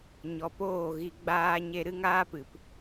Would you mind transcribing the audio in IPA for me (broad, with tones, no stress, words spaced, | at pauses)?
ɲɔ˨poː˦˨ɣi˧ ɡ͡baː˧ ɲe˧ ɾɨ˦ŋaː˦pɨ˨p